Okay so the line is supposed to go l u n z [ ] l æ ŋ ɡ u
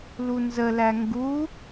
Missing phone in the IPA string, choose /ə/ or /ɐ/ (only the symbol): ə